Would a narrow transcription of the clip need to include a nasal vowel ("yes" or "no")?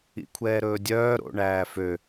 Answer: no